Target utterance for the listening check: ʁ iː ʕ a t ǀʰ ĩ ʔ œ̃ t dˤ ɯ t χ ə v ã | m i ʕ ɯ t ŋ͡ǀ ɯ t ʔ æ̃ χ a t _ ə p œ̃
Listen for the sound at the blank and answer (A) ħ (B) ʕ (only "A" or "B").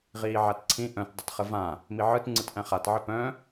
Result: B